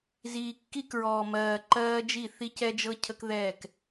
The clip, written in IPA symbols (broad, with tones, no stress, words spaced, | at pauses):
ziː˨ kːi˦kɹɔː˨ mɜː˨ ǃɜː˦d͡ʒi˦˨ θi˦cɛ˦d͡ʒɤ˦ cʰə˦kðɛː˦˨k